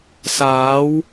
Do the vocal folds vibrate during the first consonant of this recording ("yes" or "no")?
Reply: no